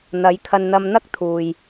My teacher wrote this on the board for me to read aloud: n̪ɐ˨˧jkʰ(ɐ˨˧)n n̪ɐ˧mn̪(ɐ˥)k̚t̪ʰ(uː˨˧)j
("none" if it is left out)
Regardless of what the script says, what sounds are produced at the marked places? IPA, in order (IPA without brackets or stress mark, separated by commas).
ɐ˧, ɐ˥, uː˨